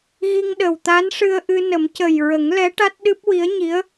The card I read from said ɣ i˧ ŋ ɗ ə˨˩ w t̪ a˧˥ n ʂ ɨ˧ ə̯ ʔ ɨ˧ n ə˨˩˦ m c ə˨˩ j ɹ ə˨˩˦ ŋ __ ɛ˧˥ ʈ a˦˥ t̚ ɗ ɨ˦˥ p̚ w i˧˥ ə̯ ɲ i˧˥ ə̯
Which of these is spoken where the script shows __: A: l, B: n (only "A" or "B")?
A